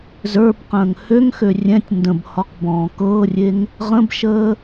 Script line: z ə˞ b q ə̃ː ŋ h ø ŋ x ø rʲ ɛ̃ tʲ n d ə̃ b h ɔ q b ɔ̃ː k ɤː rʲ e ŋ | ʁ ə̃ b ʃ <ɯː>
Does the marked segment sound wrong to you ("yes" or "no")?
yes